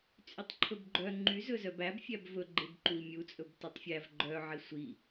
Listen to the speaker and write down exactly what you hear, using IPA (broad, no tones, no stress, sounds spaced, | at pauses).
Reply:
t͡sʼ y tˤ ǃʰ ɵ b ɡ͡ǃ œ ŋ͡ǃ y z ɵ z œ b æ b fʲ æ b v ɵ ɡ͡ǃ e b ǃ u i̯ mʲ u t͡sʼ ɵ b t ɵ tˤ fʲ æ v ɡ͡ǃ œ ʕ i sʷ i